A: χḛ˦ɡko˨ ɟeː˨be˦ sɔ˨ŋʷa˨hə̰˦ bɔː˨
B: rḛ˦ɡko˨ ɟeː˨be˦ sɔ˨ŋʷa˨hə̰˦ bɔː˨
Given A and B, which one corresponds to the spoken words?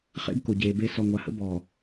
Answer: A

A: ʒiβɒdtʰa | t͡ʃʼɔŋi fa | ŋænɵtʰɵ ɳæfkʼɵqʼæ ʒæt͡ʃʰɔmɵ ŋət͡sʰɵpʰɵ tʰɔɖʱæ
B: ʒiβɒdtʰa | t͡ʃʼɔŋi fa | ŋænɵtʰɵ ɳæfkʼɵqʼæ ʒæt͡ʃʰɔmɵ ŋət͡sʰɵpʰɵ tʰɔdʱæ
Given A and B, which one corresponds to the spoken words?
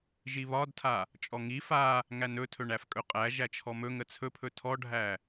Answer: A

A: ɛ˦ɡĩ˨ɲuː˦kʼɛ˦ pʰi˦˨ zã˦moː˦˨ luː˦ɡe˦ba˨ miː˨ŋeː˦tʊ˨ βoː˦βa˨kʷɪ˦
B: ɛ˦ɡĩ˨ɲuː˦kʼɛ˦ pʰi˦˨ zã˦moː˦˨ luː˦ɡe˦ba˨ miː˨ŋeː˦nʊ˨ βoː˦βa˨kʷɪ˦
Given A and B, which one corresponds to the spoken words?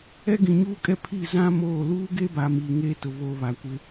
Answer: A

